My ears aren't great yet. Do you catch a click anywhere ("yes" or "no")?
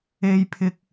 no